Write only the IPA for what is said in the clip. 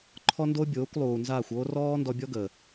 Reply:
ǃʰ ɔ˦ n d o˦ bʲ oː˨˦ kʷ lˠ uː˨ n z aː˦˨ xʷ oː˦ r ɔː˦ n d ɔ˧ bʲ ɔ˦ ɡ əː˨

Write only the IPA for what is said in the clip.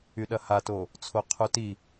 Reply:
y ɗ ɐ h a t o | t͡sʰ o qʰ u t i

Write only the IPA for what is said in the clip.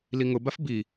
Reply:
l i ŋ ʊ b a f b i

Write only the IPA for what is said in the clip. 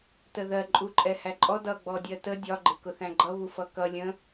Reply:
t ə ð ɜ ǃʼ u ǃʼ ɛ h æ ǃʼ ɔ d ʌ ɡ͡b ɔ dʲ ɜ t ə dʲ ɒ ɡ͡ǃ ɪ k ʊ θ æ̃ ɡ͡ǃ ʌ β u f ʌ k ʌ lʲ ə̃

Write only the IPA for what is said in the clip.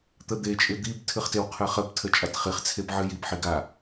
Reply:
t̪ ə d̪ e t͡ʃʼ ɪ d̪ i b tʰ ɨ χ t ɪ w qʰ ɨ χ ə b tʰ ə t͡ʃʼ a t χ i χ t͡sʰ e b ʕ ɨ j i b ħ i ɡ a

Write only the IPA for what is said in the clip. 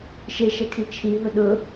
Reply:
ʃ e ʃ ɛ kʰ i t͡ʃʰ i ɦ ʊ ɗ ʊ

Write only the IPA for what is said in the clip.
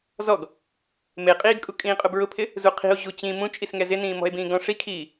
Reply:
z ɔ ɡ | m e qʼ iː ɡ kʼ u kʼ ĩː qʼ ʊ b ɹ ʊ pʰ ɪ | z u qʰ i̤ o̯ ʑ u t͡ɕ ĩ m ũ t͡ʃʼ i s ŋ ɛ z ɪ n ĩː m ɔ̤ e̯ b ĩː ɡ ɔ̃ ʂ i kʰ iː

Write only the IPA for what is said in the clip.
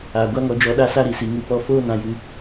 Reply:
aː˨ ɡʷ a˦ ŋ ɔ˧ d͡ʒ ɔ˧ ɗ a˦ s a˦ ɾ i˨ s i˨ ŋ ɨ˨ p ɔ˧ f oː˦ n ã˨ j ɨ˨

